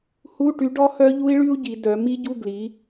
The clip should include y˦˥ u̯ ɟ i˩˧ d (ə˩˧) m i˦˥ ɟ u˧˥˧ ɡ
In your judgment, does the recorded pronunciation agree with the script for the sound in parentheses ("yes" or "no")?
no